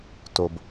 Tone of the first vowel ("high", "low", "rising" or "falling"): low